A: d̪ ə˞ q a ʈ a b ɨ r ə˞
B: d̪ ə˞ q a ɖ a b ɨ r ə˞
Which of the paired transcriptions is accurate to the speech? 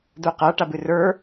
A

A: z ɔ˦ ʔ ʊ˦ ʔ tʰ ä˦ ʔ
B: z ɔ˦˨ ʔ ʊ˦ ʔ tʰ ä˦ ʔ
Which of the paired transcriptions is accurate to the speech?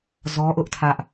A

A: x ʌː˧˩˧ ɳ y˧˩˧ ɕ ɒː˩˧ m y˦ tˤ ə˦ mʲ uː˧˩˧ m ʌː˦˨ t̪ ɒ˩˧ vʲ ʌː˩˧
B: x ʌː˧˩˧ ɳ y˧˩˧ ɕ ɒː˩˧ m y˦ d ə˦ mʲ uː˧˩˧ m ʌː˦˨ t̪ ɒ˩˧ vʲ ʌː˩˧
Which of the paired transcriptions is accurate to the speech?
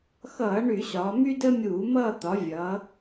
B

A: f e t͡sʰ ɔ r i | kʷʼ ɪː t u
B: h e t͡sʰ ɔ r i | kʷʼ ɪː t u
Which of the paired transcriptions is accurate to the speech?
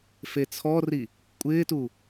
A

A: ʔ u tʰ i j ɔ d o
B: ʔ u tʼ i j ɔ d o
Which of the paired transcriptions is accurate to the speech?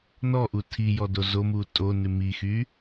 A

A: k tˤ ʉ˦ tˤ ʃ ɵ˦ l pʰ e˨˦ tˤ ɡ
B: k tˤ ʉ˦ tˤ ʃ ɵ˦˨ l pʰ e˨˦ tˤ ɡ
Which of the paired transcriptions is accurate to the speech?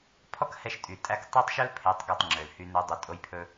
A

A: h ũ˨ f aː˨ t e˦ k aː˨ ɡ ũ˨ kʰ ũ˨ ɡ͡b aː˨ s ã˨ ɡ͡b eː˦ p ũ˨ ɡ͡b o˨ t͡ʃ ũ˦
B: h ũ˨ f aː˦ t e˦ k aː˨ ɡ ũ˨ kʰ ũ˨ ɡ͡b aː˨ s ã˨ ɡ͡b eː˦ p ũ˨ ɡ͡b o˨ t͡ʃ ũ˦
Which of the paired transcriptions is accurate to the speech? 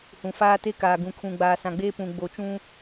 B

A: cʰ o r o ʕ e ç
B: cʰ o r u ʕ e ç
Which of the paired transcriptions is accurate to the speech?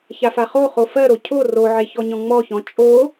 A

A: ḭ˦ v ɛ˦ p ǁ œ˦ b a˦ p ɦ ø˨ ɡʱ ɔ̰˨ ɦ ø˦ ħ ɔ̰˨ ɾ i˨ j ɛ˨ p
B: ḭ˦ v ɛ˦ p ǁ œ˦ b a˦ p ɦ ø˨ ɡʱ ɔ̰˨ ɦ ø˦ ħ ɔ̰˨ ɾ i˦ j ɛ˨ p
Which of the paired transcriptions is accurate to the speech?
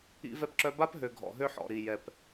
A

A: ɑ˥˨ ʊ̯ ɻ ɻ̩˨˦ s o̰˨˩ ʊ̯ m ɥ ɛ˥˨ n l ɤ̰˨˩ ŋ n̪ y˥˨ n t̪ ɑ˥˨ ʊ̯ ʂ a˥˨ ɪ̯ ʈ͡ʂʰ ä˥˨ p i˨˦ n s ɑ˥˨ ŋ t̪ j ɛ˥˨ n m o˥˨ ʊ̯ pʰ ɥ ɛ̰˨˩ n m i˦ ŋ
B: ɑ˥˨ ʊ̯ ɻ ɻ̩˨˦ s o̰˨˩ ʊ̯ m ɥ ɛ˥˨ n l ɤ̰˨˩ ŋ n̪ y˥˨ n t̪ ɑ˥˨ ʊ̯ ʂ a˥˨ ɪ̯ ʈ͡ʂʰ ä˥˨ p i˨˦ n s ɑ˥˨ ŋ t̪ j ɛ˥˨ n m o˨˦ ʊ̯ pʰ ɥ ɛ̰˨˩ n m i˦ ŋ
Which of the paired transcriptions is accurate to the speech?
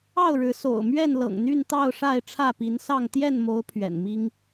B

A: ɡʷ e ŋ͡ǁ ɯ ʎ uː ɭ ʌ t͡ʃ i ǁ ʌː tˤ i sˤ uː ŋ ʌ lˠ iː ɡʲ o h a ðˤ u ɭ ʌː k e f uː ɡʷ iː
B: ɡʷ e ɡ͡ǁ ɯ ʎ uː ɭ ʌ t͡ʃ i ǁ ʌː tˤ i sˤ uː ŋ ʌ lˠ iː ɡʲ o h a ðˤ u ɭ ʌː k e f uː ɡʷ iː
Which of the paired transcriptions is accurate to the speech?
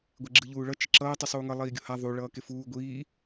B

